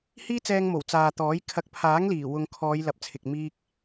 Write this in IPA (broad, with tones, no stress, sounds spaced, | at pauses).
h iː˥ t͡s ɛː˧ ŋ m o˨˩ w t͡s aː˨ t̪ ɔː˨˥ j kʰ ɐ˨˥ k̚ pʰ aː˨˥ ŋ l iː˨˩ w ʊ˧ ŋ kʰ ɔː˨˧ j l ɐ˨ p̚ t͡sʰ ɪ˨ k̚ m iː˥ k̚